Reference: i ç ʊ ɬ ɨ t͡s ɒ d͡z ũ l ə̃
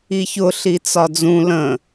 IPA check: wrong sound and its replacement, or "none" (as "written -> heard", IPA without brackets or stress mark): ɨ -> i